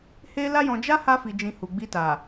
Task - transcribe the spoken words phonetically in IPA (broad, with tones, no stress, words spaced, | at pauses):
he˦ la˦jɔ̃˧ d͡ʒa˦ ha˧fi˨d͡ʒĩ˨ hu˨ ɡ͡bi˧ta˨